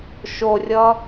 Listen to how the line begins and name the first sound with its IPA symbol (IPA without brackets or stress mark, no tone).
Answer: ʃ